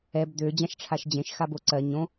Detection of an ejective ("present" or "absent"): absent